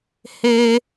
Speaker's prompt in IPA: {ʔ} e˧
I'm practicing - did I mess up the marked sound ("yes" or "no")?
yes